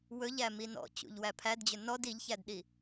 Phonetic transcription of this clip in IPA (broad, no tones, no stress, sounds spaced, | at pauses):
w ɵ ʎ æ m i n ɔ̰ t͡ɕ ṵ ʎ w æ pʰ æ d d͡ʑ ɵ n ɔ d i ʎ ç æ d ɗ i